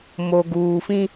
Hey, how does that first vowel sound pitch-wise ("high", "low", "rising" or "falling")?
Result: low